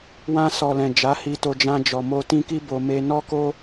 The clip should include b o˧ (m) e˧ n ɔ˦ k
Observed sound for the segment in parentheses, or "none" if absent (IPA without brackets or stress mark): m